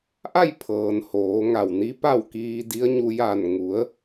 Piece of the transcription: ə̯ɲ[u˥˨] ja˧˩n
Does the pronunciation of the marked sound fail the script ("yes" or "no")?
yes